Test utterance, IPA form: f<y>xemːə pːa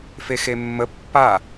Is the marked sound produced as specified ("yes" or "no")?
no